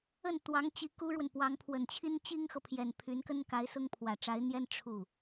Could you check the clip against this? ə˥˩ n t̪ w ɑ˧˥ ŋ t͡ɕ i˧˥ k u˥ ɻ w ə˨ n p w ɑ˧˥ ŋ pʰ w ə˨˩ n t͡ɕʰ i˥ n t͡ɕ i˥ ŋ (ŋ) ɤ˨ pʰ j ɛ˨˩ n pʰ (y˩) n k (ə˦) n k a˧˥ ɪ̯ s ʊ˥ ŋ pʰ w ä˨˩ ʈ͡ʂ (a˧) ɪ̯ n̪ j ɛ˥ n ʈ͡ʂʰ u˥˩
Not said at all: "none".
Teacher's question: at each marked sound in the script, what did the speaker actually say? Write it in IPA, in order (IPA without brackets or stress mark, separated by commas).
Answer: x, y˧˥, ə˥, a˧˥